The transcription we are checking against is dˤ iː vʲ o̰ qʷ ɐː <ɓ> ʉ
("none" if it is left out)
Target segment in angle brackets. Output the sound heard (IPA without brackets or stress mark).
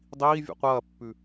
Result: pː